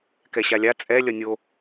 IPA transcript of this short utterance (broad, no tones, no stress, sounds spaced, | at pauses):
k ɛ ɕ a lʲ a t͡sʼ ɛ lʲ ʌ nʲ o